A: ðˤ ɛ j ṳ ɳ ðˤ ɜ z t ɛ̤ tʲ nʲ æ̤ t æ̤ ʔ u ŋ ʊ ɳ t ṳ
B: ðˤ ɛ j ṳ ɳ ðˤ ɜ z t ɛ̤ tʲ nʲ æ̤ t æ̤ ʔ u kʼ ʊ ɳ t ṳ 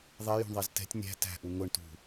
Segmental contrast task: A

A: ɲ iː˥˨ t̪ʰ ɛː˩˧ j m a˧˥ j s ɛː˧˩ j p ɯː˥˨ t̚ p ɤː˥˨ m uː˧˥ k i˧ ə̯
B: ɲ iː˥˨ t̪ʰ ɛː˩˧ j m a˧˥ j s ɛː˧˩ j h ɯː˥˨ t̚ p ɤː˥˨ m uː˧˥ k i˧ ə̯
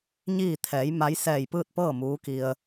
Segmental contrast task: A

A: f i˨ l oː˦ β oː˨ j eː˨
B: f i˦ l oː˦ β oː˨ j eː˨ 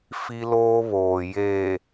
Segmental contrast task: B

